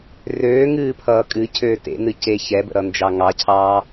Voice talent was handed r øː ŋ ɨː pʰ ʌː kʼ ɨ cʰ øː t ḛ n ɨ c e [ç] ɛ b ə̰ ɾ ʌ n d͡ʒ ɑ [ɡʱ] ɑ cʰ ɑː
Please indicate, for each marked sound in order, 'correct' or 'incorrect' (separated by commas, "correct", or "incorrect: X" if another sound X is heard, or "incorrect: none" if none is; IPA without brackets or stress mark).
correct, incorrect: ŋ